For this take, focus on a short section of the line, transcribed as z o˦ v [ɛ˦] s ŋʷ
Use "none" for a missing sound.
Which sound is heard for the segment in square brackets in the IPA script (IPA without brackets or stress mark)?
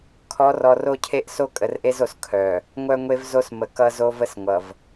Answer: ə˦